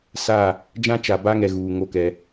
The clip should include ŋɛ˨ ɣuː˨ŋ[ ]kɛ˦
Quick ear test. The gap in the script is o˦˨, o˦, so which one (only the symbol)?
o˦˨